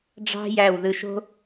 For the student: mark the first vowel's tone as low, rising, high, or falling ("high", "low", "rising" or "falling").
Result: high